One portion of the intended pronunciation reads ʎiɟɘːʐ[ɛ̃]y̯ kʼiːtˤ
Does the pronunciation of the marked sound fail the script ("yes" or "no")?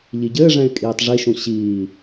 no